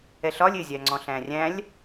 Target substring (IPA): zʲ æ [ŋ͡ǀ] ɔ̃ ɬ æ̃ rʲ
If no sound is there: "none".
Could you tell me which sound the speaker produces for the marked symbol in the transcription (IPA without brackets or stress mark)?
ŋ͡ǀ